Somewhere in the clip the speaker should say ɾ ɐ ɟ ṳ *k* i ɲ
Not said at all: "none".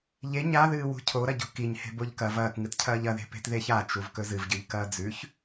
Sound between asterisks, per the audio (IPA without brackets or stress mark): k